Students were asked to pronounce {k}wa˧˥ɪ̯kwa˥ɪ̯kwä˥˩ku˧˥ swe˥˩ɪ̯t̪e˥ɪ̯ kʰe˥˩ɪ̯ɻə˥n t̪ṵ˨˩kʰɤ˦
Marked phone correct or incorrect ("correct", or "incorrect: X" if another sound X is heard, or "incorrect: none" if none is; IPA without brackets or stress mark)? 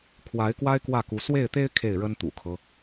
incorrect: kʰ